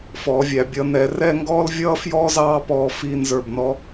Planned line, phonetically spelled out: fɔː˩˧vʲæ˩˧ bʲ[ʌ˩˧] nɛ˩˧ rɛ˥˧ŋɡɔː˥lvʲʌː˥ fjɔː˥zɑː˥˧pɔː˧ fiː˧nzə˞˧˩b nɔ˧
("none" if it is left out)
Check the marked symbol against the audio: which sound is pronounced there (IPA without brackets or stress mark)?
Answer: ʌ˩˧